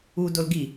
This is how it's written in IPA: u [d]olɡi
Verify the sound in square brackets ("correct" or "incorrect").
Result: correct